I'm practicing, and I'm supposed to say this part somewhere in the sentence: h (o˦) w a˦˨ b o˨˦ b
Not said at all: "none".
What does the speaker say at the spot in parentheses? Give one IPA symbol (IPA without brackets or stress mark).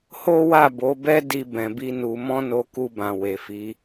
o˦